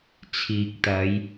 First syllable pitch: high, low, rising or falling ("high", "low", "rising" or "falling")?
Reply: low